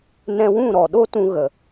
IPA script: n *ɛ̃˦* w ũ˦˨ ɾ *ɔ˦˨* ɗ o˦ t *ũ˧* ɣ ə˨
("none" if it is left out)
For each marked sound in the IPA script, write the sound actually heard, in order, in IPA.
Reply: ɛ̃˧, ɔ˨, ũ˧

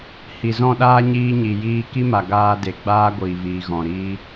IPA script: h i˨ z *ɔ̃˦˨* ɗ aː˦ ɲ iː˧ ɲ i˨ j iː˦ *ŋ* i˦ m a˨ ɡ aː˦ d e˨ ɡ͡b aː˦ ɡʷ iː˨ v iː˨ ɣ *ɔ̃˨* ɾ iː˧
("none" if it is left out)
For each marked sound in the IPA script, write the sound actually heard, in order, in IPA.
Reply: ɔ̃˦˨, k, ɔ̃˨

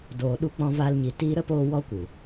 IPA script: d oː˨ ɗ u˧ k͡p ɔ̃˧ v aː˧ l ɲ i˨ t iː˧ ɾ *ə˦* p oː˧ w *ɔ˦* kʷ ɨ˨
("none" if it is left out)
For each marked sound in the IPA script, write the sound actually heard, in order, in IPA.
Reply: ə˦, ɔ˦

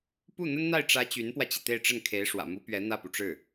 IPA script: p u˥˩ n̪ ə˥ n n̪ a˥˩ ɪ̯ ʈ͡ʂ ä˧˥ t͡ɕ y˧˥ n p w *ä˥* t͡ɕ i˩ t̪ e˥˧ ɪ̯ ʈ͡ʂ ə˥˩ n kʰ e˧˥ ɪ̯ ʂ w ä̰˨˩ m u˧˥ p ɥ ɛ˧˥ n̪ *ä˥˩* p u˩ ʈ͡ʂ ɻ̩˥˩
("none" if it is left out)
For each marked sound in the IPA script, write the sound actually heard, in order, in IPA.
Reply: ä˧, ä˥˩

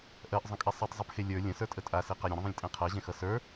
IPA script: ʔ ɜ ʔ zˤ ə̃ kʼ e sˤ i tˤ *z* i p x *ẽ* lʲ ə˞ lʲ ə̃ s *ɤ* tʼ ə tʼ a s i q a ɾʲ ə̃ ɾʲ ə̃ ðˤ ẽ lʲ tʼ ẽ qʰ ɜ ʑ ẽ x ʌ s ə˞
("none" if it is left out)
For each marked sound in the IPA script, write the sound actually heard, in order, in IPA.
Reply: zˤ, e, ə˞

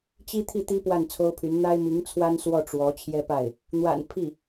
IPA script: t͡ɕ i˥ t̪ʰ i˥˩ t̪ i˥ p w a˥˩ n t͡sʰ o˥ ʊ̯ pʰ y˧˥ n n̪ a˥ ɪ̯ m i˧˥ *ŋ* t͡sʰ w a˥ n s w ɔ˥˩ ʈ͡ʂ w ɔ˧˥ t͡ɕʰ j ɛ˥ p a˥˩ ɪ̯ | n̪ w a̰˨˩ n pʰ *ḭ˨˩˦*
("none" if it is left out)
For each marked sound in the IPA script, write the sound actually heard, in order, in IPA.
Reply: ŋ, i˥˩

